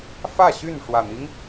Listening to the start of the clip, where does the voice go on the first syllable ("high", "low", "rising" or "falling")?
falling